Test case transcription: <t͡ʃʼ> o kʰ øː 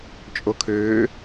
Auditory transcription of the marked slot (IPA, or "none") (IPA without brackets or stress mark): t͡ʃʼ